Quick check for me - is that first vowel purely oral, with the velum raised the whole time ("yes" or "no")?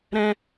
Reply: no